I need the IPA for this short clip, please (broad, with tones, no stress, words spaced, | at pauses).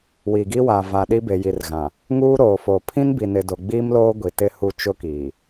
wi˨ɡi˦wa˨va˨ ɗi˦be˨ji˨rɣã˨ | ŋuː˦ ɾoː˨foː˨ pʰĩ˦nbi˨ nɪ˨ do˨ɡ͡biː˦mloː˦ ɡʷi˨tɪ˦hu˦˨ t͡ʃʊ˦kiː˨